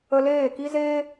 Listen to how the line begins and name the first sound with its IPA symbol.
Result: ə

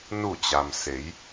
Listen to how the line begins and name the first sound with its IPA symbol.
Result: n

